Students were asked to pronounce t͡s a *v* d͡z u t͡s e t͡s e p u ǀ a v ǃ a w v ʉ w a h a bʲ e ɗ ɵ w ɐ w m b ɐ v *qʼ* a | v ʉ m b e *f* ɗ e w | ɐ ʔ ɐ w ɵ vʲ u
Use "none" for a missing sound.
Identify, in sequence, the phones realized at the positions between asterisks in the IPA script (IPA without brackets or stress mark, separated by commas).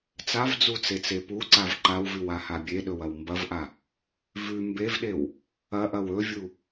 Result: v, ʔ, v